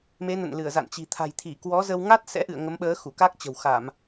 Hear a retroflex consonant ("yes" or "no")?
no